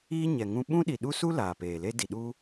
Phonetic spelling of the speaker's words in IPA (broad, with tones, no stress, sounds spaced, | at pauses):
iː˦ ɲ ɛ˨ ŋ ũ˦ ɓ ũ˦ ɗ i˨ ɗ u˦ s u˦ l aː˨ p eː˨ l e˦ d i˨ ɗ uː˦